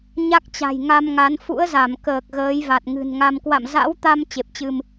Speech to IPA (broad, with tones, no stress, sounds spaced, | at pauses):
ɲ a˦˥ k̚ t͡ɕ a̤˨˩ j ŋ a˧ m ŋ a˨˦ n f ṵ˧˥ ə̯ z a˧˩ m k əː˨˩ k̚ ɣ əː˨˦ j v a˨˩ t̚ ŋ ɨ̤˨˩ n ŋ a˧ m k w a̰˧˨ m z a̰˧˥ w t̪ a˧ m t͡ɕ e˨˩ p̚ t͡ɕ ɨ˧ m